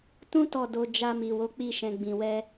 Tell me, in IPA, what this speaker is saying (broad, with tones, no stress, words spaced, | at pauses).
tũ˦ tɔ˦˨do˧ d͡ʒa˧mi˨ wo˨˦k͡pi˧ʃɛ̃˨ ɡ͡bĩ˨wɛ˧